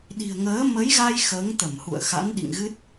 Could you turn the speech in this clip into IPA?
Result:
ɗ i̤˨˩ ə̯ ŋ əː˨˦ m ə˨˦ j ɣ a˧ j x əː˨˦ ŋ t̪ ə˧˩ m h ṵ˧˨ ə̯ x a̰˧˥ n ɗ ḭ˧˨ ŋ ɣ ɨ˦˥ t̚

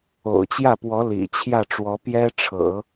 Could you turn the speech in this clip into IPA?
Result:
o̰˨˩ ʊ̯ t͡ɕ j ä˥˩ p w ɔ˧˥ l ḭ˨˩ t͡ɕʰ j ä˥˩ ʈ͡ʂ w ɔ˧˥ p j ɛ˥ ʈ͡ʂʰ ɤ̰˨˩˦

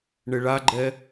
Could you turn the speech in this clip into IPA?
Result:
ɳ ɪ ɭ a ɡ͡ǃ ɛ

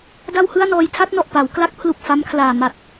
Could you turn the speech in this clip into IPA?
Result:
d a˥˩ w h ɯ˥˩ a̯ n ɔː˧ j tʰ a˥˩ t̚ n ɔ˨˩ ʔ p a˩˦ w k l a˦˥ k̚ pʰ l u˨˩ k̚ f a˦˥ m kʰ l aː˨˩ m a˨˩ t̚

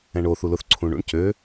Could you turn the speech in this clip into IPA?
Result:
ɛ̃ ɳ o θ u l ʊ θ ǀʰ ũ ɳ ṵ ɳ c ø

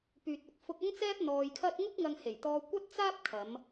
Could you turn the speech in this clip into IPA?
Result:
p yː˨ t̚ ʊ˨˥ k̚ f ʊ˧ k̚ ɐ˥ ŋ t͡s ɛː˥ p̚ n̪ ɔː˧ j kʰ ɐ˥ t̚ ŋ ʊ˥ k̚ ŋ ɐ˧ ŋ h e˨˩ j t̪ ɔː˧ kʷ ɐ˥ t̚ t͡s aː˥ p̚ kʰ ɐ˨˧ m

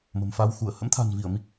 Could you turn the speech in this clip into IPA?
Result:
m ə̤˨˩ m f a˧ w x u˧˩ ə̯ h ə̰˧˥ m t̪ʰ a̤˨˩ n v i˧˩ ə̯ m i˦˥ k̚

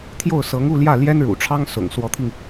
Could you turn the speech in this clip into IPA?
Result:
t̪ʰ j o˥˩ ʊ̯ s ɤ˧˥ ŋ u˥˧ l j ä˥˩ l j ɛ˥ n ɻ ṵ˨˩ ʈ͡ʂʰ ɑ˥ ŋ s ʊ̰˨˩ ŋ s w ɔ˧˥ t̪ʰ i˧ ŋ

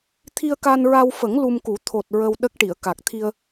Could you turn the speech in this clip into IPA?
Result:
t̪ʰ i˧ ə̯ k a˧ n ɹ a˧ w f ə˨˩˦ ŋ l u˧ m k u˨˩˦ t̪ʰ o˨˩ t̚ ɹ ə˧ w ɗ ə˦˥ k̚ ʈ i˨˩˨ ə̯ k a˨˩ k̚ t̪ʰ i˧ ə̯

